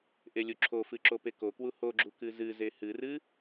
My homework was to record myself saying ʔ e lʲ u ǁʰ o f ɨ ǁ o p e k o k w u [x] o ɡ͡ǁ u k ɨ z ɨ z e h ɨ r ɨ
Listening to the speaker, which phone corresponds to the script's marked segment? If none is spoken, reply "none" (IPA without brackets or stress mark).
h